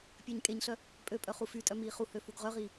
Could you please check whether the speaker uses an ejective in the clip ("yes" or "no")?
yes